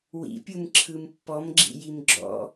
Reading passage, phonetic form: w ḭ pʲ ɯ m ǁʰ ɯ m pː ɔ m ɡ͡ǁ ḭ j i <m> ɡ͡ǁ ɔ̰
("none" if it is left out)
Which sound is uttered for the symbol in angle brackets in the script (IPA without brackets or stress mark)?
m